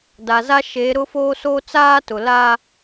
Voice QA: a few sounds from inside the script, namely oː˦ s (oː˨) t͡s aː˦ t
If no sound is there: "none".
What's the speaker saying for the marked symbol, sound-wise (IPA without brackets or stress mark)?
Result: oː˦